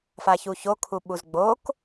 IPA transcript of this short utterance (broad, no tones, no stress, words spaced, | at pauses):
façuço kʰuɓuzɡ͡bok